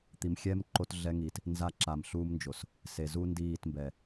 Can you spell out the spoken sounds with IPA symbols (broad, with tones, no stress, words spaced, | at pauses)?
t̪i˨mxʲɛː˦m ǃo˦tɮɛ˦ŋiː˨t | nza˦˨ǁa˨mɬuː˦mnd͡ʒo˨s | se˨zu˦ndiː˦˨tmbɛ˨